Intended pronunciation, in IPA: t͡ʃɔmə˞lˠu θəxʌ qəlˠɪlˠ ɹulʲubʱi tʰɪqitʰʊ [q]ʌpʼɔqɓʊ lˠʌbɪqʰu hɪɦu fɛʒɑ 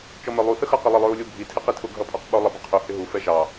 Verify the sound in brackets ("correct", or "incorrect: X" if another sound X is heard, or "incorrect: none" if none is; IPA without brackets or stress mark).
incorrect: ɡʱ